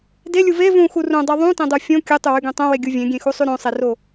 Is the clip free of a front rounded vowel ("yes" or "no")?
no